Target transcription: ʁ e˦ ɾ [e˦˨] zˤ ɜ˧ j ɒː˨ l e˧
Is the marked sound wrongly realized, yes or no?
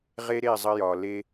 no